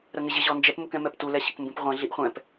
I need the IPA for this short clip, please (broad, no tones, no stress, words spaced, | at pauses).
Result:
ɾəŋɪʑɪ ʑɔnd͡ʒɛp mukɛ̃mɛptu lɛɕəkmbũpʁʷɛ̃ ɮiʔχʷɛ̃p